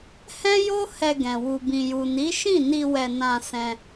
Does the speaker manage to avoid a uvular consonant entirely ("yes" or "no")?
yes